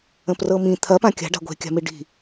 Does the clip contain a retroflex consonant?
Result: yes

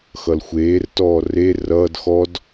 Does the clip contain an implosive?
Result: no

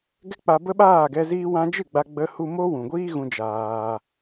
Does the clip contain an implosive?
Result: yes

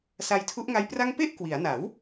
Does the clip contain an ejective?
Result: no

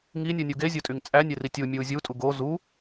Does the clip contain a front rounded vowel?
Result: yes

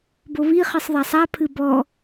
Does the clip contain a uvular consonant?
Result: yes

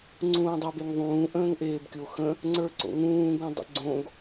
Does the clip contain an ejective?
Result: no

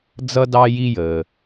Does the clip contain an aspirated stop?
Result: no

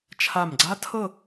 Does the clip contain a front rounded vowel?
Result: no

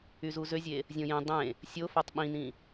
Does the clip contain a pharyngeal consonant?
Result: no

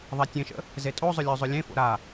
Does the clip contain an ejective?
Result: yes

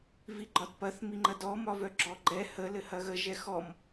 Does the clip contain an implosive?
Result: no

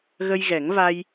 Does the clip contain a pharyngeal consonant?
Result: no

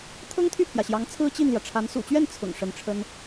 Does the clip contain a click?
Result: no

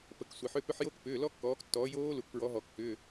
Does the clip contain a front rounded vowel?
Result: yes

